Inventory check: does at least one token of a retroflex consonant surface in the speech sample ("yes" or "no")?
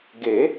no